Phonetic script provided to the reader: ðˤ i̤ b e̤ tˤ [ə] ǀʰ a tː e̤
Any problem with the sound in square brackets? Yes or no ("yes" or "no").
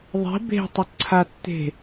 no